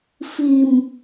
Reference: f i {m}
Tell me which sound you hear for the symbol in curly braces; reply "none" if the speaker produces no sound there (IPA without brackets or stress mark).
m